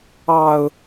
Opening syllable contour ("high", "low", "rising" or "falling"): low